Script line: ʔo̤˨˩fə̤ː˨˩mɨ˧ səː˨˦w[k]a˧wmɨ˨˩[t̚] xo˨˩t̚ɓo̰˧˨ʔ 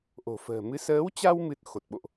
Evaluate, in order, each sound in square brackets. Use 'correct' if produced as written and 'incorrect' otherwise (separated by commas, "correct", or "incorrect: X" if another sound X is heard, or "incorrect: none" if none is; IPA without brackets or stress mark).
incorrect: t͡ɕ, correct